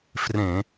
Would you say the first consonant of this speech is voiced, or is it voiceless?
voiceless